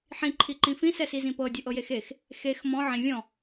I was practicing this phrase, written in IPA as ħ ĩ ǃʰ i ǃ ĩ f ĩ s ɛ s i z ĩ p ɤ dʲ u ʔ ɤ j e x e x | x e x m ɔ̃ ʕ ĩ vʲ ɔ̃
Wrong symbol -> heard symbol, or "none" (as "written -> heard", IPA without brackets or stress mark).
none